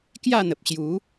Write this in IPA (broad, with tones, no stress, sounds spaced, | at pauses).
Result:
k j a˥˧ n̪ ə˨ p̚ ɕ j u˨˦